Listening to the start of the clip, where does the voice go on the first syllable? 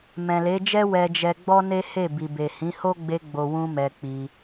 low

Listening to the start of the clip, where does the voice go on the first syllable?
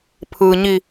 low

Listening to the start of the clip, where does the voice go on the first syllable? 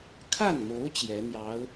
falling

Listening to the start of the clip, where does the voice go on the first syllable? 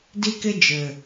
high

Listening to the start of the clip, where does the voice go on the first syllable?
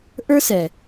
high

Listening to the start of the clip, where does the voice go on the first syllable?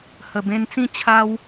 low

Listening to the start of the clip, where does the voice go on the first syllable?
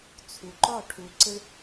low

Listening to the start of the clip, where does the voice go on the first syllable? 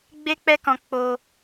high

